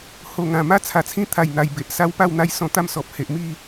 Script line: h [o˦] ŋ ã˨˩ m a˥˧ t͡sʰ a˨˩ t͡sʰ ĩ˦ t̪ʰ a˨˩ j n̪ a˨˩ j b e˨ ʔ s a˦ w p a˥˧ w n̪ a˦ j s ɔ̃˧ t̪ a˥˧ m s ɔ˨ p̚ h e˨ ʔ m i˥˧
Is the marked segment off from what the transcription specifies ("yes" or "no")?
yes